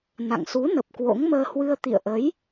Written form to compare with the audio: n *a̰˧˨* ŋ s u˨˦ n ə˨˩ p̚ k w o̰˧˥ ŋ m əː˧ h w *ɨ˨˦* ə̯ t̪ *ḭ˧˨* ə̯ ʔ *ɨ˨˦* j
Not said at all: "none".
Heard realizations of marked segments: a̰˧˨, ɨ˧, ḭ˧˨, ə˨˦

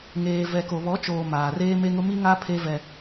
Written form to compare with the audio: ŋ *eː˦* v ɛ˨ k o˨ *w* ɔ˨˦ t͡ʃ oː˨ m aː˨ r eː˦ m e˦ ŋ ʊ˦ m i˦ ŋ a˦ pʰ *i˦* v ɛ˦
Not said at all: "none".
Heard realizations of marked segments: eː˨, β, e˦

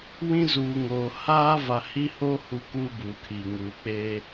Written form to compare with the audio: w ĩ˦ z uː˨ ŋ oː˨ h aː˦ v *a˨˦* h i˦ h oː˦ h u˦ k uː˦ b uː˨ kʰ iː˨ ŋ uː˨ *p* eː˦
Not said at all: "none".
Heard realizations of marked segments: a˨, k͡p

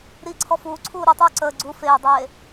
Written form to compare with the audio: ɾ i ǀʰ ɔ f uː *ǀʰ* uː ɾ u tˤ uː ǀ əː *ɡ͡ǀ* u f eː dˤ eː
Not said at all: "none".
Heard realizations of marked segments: ǀʰ, ɡ͡ǀ

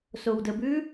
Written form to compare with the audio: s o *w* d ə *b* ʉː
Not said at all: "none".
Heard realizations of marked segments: w, b

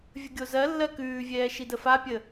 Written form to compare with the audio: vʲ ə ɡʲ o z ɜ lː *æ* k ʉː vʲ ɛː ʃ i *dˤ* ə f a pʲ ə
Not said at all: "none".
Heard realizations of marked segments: ɜ, d

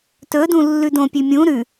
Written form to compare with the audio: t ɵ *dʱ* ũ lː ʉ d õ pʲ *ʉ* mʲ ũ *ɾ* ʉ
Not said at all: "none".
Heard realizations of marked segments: d, ʉ, ɾ

